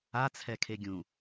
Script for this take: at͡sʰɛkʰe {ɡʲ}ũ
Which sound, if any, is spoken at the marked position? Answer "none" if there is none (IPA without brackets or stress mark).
ɡʲ